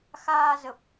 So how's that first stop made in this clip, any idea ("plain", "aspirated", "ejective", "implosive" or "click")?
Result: plain